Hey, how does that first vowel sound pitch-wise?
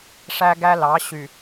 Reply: high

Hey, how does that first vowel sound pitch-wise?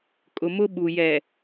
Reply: low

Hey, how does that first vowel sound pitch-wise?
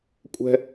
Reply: high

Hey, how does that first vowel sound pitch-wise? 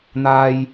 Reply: high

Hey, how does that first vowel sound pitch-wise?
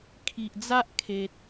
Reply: low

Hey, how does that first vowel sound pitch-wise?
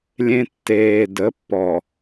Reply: high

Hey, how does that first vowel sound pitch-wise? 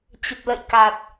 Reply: low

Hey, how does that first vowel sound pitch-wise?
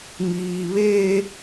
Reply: high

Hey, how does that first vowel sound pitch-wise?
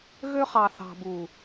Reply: high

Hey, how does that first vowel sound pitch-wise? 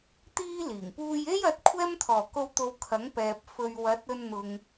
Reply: high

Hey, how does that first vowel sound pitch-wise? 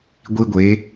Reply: high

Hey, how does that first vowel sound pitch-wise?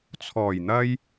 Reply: low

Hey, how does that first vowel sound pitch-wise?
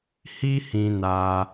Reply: high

